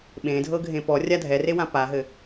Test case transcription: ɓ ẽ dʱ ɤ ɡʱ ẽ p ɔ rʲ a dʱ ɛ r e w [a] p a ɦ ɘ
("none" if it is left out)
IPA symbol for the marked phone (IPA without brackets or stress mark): ã